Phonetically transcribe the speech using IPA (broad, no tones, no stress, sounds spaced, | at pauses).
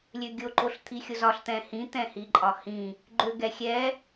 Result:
lʲ ø ɡʲ o ǃ o ɬ t̪ʰ i xʲ o z ɒ ɬ t̪ ɛ̃ h ĩ t̪ ɛ̃ h i ǃʼ ɒ h ĩ | ɡ͡ǃ ø ɡ ɛ xʲ ɛ